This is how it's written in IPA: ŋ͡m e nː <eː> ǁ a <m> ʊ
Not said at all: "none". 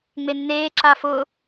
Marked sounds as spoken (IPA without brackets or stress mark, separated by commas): eː, f